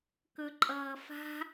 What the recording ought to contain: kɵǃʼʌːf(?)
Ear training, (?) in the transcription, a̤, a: a̤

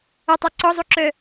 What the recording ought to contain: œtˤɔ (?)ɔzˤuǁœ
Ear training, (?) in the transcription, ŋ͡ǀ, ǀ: ǀ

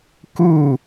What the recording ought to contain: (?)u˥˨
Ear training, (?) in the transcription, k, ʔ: k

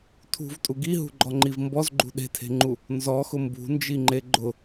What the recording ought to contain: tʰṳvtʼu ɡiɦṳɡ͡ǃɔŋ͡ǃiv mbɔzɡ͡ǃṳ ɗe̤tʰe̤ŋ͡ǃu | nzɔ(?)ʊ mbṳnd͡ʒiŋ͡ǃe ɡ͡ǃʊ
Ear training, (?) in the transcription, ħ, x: x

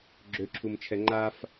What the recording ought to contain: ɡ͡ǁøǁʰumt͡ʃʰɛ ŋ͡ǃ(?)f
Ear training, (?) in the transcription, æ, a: a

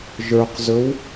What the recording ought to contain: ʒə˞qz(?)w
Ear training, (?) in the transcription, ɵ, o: ɵ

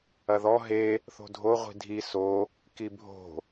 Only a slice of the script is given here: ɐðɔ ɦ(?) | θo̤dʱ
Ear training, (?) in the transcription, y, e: e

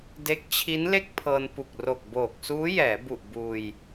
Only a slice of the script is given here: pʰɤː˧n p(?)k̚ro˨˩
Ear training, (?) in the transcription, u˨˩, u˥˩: u˨˩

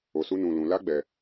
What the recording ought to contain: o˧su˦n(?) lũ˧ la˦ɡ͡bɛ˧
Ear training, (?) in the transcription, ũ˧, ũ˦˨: ũ˧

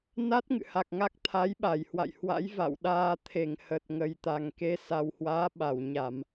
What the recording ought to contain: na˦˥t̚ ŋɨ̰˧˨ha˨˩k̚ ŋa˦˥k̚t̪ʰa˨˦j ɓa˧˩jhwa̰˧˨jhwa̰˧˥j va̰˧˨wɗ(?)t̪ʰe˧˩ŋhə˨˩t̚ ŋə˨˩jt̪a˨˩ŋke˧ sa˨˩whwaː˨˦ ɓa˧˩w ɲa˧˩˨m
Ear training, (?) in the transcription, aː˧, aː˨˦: aː˧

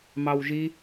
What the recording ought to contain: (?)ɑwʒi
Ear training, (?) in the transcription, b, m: m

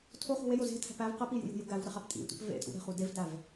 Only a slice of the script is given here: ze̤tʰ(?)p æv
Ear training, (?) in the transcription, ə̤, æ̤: æ̤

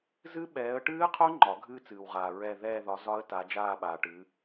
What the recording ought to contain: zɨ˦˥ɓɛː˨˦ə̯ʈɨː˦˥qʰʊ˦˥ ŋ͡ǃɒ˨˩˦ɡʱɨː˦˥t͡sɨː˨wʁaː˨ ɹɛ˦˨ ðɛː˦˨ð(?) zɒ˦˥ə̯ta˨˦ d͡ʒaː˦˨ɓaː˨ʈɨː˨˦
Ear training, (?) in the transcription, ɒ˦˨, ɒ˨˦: ɒ˨˦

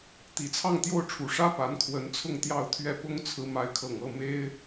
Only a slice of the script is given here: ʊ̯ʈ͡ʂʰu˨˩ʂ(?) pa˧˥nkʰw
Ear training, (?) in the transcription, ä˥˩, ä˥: ä˥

